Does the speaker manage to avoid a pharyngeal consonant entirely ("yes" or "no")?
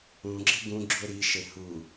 yes